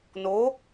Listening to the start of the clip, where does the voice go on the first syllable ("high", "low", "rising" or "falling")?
rising